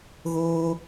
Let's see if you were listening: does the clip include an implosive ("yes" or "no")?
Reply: no